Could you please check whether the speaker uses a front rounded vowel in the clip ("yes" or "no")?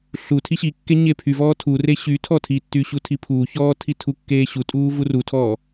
yes